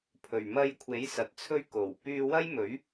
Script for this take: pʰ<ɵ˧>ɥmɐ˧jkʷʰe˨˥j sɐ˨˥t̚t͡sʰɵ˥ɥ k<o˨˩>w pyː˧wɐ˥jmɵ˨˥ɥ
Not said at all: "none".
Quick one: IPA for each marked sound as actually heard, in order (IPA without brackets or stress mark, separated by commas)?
ɵ˨˩, o˨˩